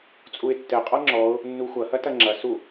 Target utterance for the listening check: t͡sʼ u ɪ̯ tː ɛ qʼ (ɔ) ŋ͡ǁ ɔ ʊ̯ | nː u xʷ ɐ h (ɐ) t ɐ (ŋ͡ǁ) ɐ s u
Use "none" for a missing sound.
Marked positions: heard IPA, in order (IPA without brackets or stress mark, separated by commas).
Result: ɔ, ɐ, ŋ͡ǁ